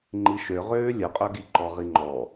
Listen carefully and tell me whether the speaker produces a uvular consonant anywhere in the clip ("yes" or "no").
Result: yes